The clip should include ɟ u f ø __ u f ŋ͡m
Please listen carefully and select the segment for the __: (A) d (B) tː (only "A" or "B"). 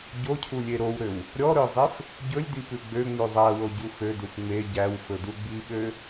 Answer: A